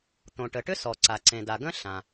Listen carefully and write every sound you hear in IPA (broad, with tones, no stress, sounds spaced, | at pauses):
t̪ õ˩ ʈ ə˩ ʈ ʏ˥ s ɔ˩ ǀ a˩ ǀ ẽ˩ d a˩ ɡ ə̃˥ ɬ ã˩